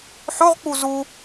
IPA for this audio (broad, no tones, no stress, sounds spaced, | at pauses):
ħ o ʁ k͡p u z u